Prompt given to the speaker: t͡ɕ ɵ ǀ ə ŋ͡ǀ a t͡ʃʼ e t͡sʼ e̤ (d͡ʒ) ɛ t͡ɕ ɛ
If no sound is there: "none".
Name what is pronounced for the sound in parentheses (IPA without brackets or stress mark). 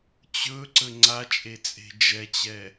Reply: d͡ʒ